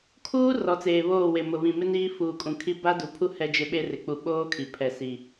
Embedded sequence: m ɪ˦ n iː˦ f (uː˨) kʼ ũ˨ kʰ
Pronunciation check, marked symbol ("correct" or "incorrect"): correct